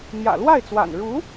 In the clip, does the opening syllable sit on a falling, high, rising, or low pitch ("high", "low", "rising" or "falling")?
low